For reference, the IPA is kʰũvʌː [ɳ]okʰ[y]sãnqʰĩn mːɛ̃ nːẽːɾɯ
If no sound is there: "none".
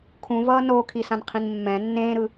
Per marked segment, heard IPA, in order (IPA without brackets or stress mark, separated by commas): n, i